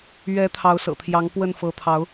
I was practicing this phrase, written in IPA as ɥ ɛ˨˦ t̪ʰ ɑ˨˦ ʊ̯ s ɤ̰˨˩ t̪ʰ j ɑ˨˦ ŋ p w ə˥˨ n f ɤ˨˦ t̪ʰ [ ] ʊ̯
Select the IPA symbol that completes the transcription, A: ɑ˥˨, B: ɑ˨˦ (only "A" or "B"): B